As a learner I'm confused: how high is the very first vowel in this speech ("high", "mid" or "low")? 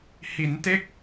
high